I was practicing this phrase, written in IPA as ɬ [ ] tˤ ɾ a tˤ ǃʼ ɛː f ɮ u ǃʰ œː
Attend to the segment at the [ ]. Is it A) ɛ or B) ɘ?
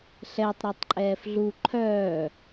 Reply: A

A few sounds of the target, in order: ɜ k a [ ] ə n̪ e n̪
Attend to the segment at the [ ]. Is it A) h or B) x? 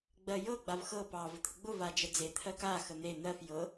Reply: B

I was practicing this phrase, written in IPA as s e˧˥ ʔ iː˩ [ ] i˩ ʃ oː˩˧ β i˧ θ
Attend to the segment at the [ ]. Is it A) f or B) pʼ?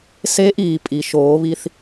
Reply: B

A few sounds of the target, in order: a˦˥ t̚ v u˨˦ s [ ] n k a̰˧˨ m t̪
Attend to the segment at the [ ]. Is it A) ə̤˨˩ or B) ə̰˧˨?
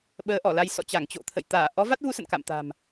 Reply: B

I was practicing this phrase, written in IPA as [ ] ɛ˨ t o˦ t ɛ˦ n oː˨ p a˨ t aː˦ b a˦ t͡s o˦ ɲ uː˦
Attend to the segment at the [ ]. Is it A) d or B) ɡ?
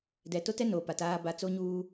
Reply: A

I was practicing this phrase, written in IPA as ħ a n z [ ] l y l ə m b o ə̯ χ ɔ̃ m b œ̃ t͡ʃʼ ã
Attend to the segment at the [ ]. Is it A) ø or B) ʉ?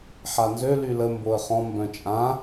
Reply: A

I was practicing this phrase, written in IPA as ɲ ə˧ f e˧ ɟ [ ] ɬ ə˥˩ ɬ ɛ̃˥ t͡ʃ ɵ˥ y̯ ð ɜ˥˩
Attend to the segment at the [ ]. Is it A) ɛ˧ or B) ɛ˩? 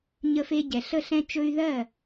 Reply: B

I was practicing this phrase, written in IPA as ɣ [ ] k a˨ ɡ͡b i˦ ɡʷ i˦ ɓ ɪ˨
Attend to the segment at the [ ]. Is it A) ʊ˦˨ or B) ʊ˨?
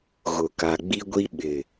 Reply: B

